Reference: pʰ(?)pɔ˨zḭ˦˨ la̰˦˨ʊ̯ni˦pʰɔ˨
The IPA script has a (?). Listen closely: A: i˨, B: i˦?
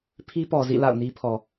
B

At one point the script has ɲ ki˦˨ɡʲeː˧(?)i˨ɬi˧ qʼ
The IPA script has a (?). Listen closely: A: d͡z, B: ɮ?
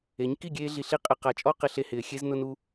B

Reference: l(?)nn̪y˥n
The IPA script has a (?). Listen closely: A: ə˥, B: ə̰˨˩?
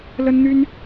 A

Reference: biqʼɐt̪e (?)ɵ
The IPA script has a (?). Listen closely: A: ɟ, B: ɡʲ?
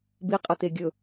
B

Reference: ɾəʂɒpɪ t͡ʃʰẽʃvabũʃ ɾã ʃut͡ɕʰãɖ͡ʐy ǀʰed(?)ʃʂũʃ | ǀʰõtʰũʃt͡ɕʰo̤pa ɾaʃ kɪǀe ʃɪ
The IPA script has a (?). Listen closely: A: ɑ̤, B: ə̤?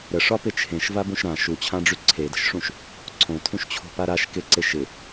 B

